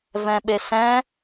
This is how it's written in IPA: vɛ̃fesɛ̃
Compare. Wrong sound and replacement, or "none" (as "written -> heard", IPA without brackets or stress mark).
f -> ɓ